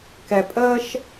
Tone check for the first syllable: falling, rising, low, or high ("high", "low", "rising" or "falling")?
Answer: low